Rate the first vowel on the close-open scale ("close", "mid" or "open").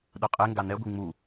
close